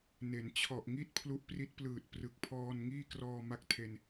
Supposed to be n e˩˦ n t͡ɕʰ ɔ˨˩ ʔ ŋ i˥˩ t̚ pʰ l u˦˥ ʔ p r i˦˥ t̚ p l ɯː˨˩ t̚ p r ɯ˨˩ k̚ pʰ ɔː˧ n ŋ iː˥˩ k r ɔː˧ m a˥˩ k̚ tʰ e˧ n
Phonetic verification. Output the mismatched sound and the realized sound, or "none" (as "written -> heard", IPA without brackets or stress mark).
none